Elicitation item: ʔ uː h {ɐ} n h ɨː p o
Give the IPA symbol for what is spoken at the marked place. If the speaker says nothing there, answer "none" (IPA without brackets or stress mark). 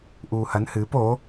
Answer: ɐ